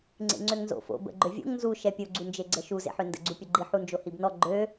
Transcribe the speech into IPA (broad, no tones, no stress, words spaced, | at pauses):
ŋ͡ǀḛŋ͡ǀøŋnzo̰ fo̰ bə̰ ɡ͡ǃøvʲo̰ŋ nzu ʃɛpʲo ɡ͡ǀund͡ʒeɡ͡ǀəʃu zḛħøndə̰ ɡ͡ǀupʲoɡ͡ǃi ħund͡ʒohibnɔ ɡ͡ǃø